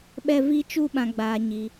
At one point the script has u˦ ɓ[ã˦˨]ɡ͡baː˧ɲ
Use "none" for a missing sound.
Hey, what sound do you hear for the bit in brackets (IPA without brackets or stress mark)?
ã˧